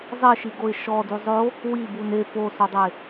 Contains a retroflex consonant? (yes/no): no